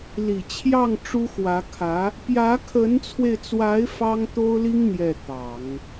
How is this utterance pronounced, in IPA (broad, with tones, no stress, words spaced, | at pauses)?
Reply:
li˨˩t͡ɕʰjɑ˥˩ŋ ʈ͡ʂu˥xwä˧˥ kʰä˧˥ | pjä˧˥kʰə˧˥nt͡sʰwe˧ɪ̯t͡swa˧˥ɪ̯ fɑ˥ŋ t̪o˥ʊ̯li˥ŋ n̪jɛ˥˩t̪ɑ˨˩˦ŋ